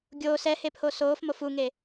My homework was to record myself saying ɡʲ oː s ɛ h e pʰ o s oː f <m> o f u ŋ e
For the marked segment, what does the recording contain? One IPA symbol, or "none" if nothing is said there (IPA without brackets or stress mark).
m